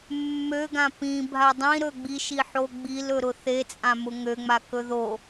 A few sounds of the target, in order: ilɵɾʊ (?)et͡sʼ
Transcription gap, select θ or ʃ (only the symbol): θ